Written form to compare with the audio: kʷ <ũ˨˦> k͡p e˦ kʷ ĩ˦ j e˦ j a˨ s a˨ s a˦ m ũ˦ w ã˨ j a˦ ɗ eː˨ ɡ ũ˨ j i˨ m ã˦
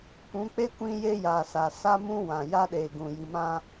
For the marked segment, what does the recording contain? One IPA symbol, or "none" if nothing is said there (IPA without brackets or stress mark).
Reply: ũ˨˦